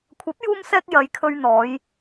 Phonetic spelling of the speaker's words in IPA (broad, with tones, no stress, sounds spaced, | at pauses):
kʷʰ ɐ˨˥ p̚ j uː˧ m s ɛː˧ k̚ j ɐ˨˧ j kʰ ɵ˧ ɥ n̪ ɔː˨˧ j